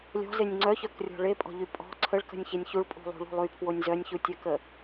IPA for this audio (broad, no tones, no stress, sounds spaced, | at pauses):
lʲ ɔ̤ z e nʲ ŋ͡ǀ œ ç œ k rʲ ɔ̤ ɭ e pʼ ɔ̤ ʎ y pʼ ɔ̤ ǀʰ ə ɭ k ə̤ nʲ ç e nʲ ç u ɭ pʼ ṳ lˠ ṳ ɭ ṳ lˠ y pʰ w o nʲ z œ nʲ ç u tʲ œ k ə